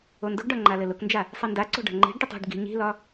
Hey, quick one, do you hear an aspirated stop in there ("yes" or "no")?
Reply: no